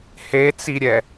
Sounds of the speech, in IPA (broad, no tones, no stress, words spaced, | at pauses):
het͡siɾʲɛ